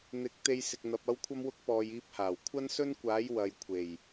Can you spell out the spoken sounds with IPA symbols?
n̪ɪ˨˥k̚ t̪e˧jsɪ˨k̚ n̪ɐ˨p̚ ɐ˥wkʷʰɐ˥mwʊ˥k̚ pɔː˨j iː˧p̚haː˨˩w kʷʰɐ˥nsɵ˥nkʷaː˨˥j wɐ˨jkʷʰe˨˩j

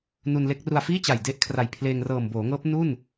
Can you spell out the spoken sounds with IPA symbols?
nu˧nle˦˥k̚ ru˧a̯fiː˥˩t͡ɕa˨˩j de˥˩ʔkʰra˨˩j pʰleː˧ŋrɤː˨˩m boː˩˦ŋɤː˦˥p̚ nu˥˩n

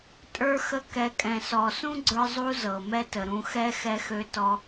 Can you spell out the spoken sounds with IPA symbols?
tʼə˞˧xə˧ kɛ˨kʼɛ̃˨sɔ˨ sũ˦ɡ͡ǀə˞˧zˤu˧ zɤ˨mɛ˦tə˨ɾũ˧ xɛ˦ xɛ˧xø˧ tɔ˧

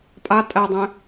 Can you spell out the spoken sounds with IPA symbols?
pʼa tʼædˤɛ̃

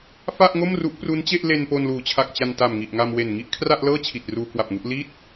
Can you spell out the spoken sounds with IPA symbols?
fa˥˩ʔŋo˥˩mru˦˥ʔ pru˦˥nt͡ɕe˥˩ʔle˧n po˧nluː˩˦t͡ɕʰa˨˩k̚ t͡ɕa˧nta˨˩m ŋi˨˩ʔŋa˧m we˨˩n ŋi˥˩ʔkʰra˥˩ʔlɤː˥˩ t͡ɕʰi˨˩t̚ruː˧kwa˨˩p̚ŋu˦˥ʔ li˥˩t̚

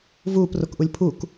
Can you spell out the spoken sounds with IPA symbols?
vuːprokʔulʲ pʰuk

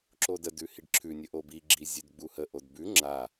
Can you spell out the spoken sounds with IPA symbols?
ǁodə dʉhiɖǁʰʉ nʲəʔobi ɡ͡ǁizʲʉdɡ͡buhə ʔodbʉ ŋ͡ǁa

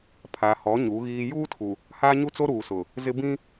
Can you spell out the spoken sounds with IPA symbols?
pʰa˨hɔ˨˦ ɲu˨˦ɣiː˦ juː˦tʰu˨ | haː˦ɲu˦t͡so˦ ɾuː˨sʊ˨ | zɪ˦ bĩ˦

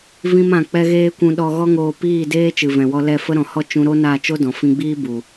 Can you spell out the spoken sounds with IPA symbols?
vĩ˦mã˧ k͡pɛ˧ɣeː˧ kʷũ˧ɗɔ˧ɣɔ˦ŋoː˧ piː˦˨ deː˦t͡ʃɨ˨vɛ̃˨wɔ˧ lɛ˦˨fə˦ɾɔ̃˨hɔ˦ t͡ʃũ˧ɾo˦na˦˨ t͡ʃo˦dɔ̃˨ fĩ˧ɡ͡biː˦ bu˨

